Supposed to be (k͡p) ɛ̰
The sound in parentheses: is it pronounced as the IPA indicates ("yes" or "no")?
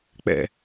yes